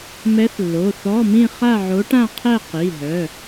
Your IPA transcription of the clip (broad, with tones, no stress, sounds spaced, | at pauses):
m ɛ˧˥ θ lː o˩˧˩ θ ɔ˧˥˧ m ĩ˥˧ χ a˥˧ ʕ o˧˥ ʈ ã˥˧ qʰ ɛ˥˧ q i˩˧˩ ɦ œ˩˧˩